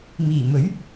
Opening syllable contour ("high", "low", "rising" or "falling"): low